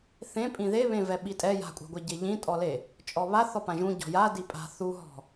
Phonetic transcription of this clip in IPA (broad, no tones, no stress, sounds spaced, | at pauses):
θ ẽ pʼ ĩ ð e β ẽ v ɛ ɓ i tʼ ɛ j a̤ kʷʼ a̤ ɡʷ ɛ ɟ e ʎ ĩ tʼ ɔ l e | t͡ʃʼ ɔ β a θ ɔ p ã ʒ ũ ɟ ɔ̤ j a d i pʼ a̤ θ u ɦ ɔ̤